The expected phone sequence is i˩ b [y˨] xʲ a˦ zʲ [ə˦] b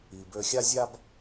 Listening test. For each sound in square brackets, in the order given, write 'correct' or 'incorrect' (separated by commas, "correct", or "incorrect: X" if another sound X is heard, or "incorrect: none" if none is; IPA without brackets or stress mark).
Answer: incorrect: ø˨, incorrect: a˦